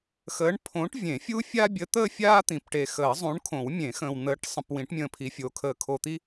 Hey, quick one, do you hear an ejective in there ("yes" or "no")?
no